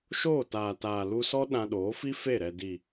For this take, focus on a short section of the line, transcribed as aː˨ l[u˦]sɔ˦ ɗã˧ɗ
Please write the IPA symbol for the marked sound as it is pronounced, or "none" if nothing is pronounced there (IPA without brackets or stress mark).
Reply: u˧